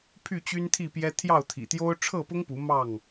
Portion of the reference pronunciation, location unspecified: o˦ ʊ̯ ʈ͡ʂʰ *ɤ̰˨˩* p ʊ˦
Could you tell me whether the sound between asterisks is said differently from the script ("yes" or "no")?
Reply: yes